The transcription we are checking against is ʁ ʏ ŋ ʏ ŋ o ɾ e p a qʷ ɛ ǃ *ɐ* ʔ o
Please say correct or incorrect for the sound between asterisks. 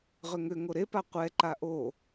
incorrect: a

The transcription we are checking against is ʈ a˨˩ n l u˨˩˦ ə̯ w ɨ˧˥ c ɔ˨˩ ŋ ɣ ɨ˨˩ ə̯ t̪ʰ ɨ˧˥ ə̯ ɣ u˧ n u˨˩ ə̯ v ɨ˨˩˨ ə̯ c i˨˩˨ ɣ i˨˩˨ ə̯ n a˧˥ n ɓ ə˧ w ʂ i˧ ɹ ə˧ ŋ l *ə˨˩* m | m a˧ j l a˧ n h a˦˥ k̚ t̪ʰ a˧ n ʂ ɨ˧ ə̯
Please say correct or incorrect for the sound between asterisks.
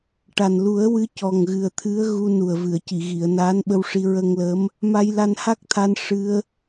incorrect: ə˧˥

